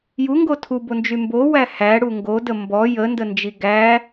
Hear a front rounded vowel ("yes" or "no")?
yes